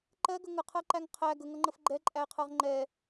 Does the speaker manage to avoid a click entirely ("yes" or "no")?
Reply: no